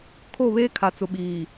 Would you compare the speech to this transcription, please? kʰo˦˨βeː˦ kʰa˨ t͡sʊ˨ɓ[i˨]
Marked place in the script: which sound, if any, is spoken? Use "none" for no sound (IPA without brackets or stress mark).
iː˨